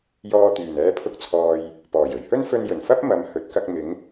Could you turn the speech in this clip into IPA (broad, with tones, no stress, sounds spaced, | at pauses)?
j ɔː˧ t̪ yː˨˩ n ɛː˧ pʰ ʊ˧ k̚ t͡sʰ ɔː˨ j | p ɔː˨˩ j ɵ˨˩ ɥ h ɵ˥ n f ɵ˧ n j ɵ˨˩ n f ɐ˥ p̚ m ɐ˨˧ m h ɵ˨˥ t̚ k ɐ˧ k̚ m ɪ˨˧ ŋ